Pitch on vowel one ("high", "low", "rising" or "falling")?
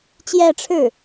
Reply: falling